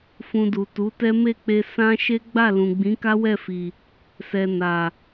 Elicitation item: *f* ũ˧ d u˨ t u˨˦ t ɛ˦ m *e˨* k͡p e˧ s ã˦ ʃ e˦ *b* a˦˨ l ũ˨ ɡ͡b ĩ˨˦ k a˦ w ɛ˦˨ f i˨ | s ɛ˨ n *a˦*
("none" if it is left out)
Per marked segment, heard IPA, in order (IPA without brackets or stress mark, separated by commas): f, e˦˨, ɡ͡b, a˨